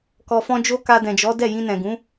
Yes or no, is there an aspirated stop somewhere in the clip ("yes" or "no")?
no